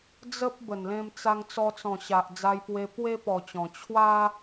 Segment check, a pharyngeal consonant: absent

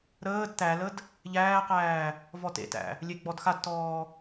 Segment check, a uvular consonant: present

